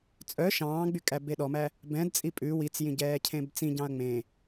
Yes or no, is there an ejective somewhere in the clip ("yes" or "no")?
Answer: yes